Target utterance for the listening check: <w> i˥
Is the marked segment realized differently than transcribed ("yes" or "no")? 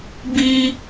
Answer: yes